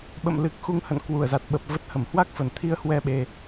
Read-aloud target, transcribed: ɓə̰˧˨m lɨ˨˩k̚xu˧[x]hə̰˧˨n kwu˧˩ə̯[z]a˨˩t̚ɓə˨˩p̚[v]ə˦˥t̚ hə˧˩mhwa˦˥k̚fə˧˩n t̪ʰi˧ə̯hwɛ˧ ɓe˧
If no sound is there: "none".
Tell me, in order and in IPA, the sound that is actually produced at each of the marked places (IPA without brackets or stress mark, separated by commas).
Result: ŋ, z, v